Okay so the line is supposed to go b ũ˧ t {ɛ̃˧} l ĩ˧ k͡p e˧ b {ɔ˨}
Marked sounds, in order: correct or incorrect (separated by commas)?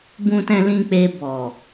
correct, correct